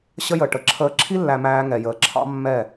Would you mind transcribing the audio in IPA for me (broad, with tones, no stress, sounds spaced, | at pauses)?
ɕ ə˦ j ə˨ ʈ ə˨ ǁʰ əː˨ ǁʰ i˦ lː æ˨ m æː˦ ŋ ɛ˨ j əː˨ ǁʰ ɑ̰˦ mː ɛ˦˨